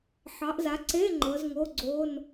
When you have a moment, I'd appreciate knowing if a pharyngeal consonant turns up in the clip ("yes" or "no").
yes